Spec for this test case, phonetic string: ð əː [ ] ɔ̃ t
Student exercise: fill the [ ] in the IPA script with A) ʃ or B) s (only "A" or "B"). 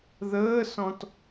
B